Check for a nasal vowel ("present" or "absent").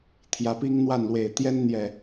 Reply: absent